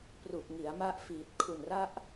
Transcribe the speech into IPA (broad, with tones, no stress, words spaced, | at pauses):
pru˨˩k̚ ŋi˩˦a̯ma˦˥ʔ fiː˨˩t̚ kʰu˨˩nra˦˥ʔ